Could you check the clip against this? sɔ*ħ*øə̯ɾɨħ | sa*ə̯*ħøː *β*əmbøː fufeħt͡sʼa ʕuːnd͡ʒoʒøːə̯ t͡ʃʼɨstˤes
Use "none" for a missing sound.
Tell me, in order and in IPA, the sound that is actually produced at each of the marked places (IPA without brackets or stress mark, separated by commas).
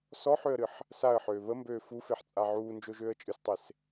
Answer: ħ, ə̯, β